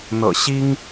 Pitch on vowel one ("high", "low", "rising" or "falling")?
low